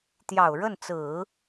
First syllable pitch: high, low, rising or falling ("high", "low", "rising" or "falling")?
low